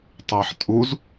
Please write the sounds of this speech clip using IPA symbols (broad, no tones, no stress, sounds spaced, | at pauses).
tˤ ɛ ħ tʼ u z